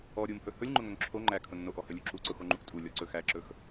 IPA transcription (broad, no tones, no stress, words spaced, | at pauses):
ɔ ɾʲumhɵ hɵlʲŋ͡ǃʊŋɵŋ ǁʰo ŋ͡ǃækʰʊ nːoʔɔhɵlʲu ǁuǀʊxoŋ͡ǃuʔ tʼulʲɔǀɵ xæǁɵx